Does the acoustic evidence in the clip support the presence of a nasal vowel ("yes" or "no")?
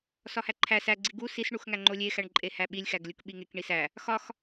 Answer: no